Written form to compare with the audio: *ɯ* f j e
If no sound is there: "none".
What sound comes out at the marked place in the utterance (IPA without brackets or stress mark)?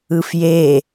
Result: ɯ